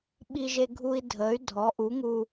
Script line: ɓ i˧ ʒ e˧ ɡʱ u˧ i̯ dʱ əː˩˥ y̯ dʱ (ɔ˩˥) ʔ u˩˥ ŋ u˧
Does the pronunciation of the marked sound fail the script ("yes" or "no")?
no